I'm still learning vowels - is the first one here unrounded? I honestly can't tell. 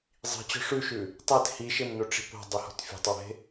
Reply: yes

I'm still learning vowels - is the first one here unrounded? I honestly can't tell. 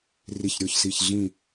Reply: yes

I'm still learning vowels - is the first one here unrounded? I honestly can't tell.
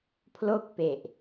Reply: no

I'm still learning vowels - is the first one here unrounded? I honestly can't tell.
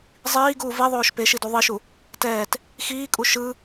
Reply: yes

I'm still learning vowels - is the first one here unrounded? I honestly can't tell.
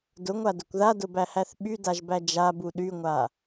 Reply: no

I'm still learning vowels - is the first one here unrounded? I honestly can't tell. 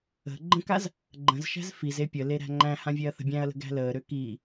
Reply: yes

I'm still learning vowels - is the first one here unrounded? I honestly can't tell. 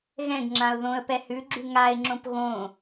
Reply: yes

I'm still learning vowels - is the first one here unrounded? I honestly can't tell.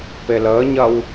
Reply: yes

